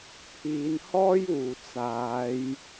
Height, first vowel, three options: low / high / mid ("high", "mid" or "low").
high